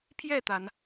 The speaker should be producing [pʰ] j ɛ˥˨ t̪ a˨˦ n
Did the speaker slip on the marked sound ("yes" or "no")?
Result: no